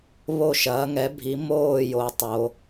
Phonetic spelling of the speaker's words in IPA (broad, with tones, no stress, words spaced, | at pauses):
βo˦˨ʃɐː˩˥ ŋɛ˩˥ bʱi˩˥ moː˦˨jo˩˧ tˤo˩˧